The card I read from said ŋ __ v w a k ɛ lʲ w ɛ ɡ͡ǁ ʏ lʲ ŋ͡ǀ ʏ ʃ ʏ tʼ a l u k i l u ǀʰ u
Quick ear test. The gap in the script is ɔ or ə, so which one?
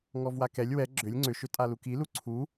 ɔ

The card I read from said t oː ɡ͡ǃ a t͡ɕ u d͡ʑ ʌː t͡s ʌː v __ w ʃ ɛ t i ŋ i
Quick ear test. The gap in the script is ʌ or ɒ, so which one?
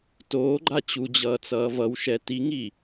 ʌ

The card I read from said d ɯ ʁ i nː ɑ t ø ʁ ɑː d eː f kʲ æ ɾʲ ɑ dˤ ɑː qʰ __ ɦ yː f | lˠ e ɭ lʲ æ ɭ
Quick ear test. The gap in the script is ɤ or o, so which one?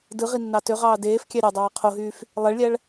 o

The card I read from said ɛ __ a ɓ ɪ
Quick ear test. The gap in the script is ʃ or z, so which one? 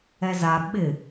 z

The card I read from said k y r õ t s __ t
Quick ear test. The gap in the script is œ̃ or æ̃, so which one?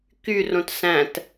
æ̃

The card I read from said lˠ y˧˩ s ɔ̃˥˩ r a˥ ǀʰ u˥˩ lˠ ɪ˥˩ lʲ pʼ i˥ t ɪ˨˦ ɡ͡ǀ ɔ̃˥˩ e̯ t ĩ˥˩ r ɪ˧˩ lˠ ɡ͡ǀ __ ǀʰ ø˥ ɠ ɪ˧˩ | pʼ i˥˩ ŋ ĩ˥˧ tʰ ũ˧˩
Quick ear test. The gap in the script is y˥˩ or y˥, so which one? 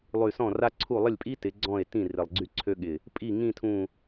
y˥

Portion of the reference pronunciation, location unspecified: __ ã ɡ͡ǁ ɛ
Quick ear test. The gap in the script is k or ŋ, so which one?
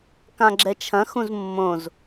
k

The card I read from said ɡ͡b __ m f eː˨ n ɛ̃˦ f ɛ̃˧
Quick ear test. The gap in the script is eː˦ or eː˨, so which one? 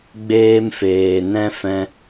eː˦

